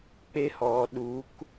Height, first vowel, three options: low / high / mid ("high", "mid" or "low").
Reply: mid